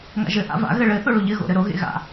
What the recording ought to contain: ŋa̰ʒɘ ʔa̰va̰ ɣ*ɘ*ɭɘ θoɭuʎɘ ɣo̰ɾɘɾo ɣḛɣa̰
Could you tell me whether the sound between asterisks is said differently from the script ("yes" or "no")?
no